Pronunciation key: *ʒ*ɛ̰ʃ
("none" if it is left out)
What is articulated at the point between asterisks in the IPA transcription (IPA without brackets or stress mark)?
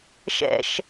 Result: ʃ